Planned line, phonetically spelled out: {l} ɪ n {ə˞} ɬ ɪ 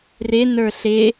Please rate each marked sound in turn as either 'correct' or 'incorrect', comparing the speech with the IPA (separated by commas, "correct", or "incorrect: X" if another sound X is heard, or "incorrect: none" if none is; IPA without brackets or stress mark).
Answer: incorrect: r, correct